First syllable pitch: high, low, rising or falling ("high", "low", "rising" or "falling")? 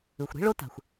low